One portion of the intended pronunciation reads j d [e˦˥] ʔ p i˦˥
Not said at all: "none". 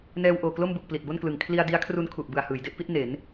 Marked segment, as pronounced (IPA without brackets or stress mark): e˦˥